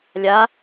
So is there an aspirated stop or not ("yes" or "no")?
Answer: no